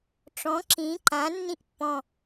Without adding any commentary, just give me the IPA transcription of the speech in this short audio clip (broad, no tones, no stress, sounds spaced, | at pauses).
ʈ͡ʂ ɔ̃ ǁ ĩ ǃ ã nː ĩ ʔ pː ɔ̃